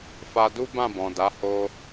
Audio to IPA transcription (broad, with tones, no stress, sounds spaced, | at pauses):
f a˧ d u˦ b ã˦˨ b ɔ̃˨ d a˨˦ h o˧